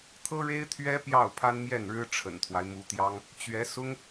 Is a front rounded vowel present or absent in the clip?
absent